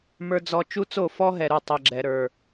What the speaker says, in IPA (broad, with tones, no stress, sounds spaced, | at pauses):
m ə˞˦ d͡z ɔ˦ t͡ʃ u˦ t͡s o˦˨ f ɔ˦ ɦ ɛ˧ ɾ u˦˨ tˤ ɛ˨ ɡ͡ǁ ɛ˨ ɾ ə˞˨